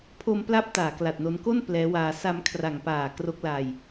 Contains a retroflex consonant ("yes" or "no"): no